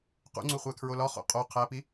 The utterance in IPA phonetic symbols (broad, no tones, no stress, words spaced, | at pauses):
qṵŋ͡ǀuχʷækʰɹo lɒχo̰ qʼo qʰæpi